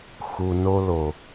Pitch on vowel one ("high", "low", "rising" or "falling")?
low